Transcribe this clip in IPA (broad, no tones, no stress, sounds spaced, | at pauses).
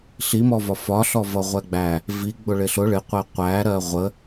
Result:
ɬ i m ɔ v ɒ f ɒ ɬ ɔ v ʌ ʁʷ ɛ ɡ͡b æ | v i ɡ͡b ʊ ɭ ɪ ɬ ʊ ɭ ɪ qʷ ɛ qʷ æ ɾ ɜ ʁʷ ə